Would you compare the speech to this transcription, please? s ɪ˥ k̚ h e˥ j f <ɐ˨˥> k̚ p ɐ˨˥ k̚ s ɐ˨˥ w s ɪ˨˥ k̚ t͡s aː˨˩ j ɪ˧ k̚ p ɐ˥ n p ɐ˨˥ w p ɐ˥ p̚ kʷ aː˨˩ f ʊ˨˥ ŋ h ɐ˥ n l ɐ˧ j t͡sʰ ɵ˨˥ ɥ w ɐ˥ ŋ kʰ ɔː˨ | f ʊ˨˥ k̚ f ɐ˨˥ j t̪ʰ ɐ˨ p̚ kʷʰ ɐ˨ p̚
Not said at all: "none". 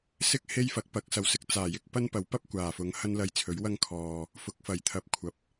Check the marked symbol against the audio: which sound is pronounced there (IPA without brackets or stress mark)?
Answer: ɐ˨˥